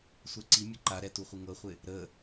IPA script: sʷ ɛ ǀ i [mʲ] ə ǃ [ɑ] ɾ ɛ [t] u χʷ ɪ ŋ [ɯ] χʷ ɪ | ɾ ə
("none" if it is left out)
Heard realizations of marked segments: mʲ, a, t, ɤ

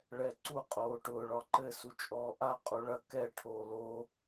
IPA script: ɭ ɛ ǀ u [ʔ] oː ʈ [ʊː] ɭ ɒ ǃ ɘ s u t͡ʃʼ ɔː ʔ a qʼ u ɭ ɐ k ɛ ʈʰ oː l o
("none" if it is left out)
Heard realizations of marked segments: qʼ, ʊː

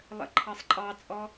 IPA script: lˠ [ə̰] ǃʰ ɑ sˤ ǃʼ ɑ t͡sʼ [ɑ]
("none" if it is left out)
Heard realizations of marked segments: ə̰, ɔ

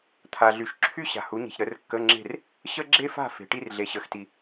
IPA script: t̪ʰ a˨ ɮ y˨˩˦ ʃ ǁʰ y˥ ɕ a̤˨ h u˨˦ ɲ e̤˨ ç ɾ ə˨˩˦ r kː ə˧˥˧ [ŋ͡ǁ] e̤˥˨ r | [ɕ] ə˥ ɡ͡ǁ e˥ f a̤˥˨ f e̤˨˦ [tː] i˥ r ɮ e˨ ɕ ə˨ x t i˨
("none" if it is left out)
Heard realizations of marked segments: ŋ͡ǁ, ɕ, ʈ

